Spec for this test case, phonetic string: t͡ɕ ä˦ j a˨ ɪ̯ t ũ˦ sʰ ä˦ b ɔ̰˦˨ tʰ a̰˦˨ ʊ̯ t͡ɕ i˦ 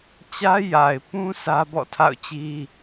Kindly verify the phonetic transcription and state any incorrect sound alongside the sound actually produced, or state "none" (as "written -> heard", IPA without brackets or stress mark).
t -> p